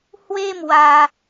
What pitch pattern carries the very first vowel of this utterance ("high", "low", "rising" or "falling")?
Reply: high